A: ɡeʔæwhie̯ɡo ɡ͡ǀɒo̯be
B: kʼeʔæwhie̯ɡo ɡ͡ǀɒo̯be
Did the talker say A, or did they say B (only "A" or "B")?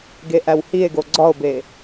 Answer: A